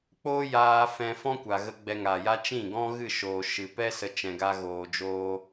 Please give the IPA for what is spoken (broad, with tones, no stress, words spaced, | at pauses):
k͡poː˦jaː˧ fɛ̃˧fɔ̃˦kʷa˨ ɣə˧ ɡ͡bɛ˧ŋaː˨ja˦ t͡ʃĩ˦˨ɡɔ̃˦ ɣɨ˦˨ʃoː˨ʃɨ˨pɛ˦ sə˦ t͡ʃɛ̃˨ɡa˧ ɣoː˧ d͡ʒoː˦